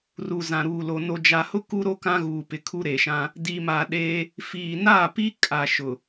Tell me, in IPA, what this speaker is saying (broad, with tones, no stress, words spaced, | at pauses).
ru˨zã˨ɾuː˨lo˨ no˨d͡ʒa˨hʊ˦ ku˦ɾo˦ kã˦ɣuː˨ pɪ˨kʰu˦ɾe˨ʃã˦ | di˨ma˨ ɗeː˦ | fiː˨ naː˦˨pi˦ kʼa˨ʃʊ˨